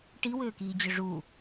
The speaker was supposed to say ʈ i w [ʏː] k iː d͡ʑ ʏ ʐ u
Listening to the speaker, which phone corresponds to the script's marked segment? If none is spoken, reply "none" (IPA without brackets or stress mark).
ʏː